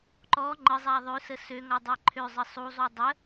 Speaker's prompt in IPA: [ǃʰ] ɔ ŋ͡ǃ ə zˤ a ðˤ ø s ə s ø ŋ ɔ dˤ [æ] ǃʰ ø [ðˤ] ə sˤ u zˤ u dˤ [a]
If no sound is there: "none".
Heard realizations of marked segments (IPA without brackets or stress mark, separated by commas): ǃ, æ, zˤ, ə